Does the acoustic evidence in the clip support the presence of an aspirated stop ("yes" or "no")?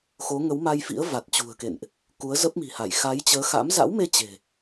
no